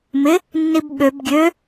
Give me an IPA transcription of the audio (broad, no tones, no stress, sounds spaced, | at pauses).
m ɪ | nː i b ɓ ø b ɡʲ ø